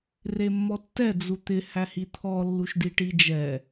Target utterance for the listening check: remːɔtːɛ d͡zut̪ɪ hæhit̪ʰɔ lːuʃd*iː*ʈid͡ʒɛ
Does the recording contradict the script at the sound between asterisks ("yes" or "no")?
yes